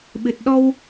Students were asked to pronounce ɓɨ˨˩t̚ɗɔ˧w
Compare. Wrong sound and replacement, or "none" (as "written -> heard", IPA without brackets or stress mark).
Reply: none